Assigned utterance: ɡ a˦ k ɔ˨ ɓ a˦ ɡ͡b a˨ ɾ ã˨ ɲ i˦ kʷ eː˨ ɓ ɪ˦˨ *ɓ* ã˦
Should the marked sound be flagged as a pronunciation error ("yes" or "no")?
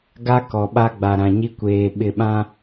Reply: no